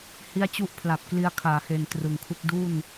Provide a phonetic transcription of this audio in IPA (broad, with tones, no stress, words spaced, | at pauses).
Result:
hi˦˥a̯t͡ɕu˦˥ʔ pʰla˨˩p̚kli˧a̯kʰaː˩˦he˨˩n trɯ˨˩ŋkʰu˥˩k̚ du˥˩n